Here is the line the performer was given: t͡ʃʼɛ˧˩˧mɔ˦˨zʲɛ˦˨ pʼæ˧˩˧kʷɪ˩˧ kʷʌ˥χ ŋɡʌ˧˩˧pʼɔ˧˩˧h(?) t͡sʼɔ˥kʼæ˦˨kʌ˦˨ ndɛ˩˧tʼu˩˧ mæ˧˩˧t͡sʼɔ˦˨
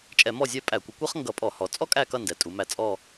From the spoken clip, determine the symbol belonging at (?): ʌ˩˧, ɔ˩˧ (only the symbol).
ɔ˩˧